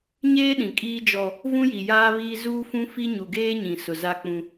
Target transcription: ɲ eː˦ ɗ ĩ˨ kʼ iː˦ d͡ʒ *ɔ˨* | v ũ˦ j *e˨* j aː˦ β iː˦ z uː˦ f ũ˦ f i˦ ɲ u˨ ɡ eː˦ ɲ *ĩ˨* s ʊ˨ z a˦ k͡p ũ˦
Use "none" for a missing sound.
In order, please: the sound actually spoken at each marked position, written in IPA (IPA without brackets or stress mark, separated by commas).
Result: ɔ˦, i˨, ĩ˨